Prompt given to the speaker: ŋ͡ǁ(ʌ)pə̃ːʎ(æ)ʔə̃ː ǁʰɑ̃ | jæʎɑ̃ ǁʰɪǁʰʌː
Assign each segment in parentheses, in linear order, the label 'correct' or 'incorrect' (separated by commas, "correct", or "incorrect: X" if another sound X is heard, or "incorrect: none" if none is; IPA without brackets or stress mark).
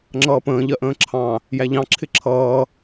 incorrect: ʌː, incorrect: ɜ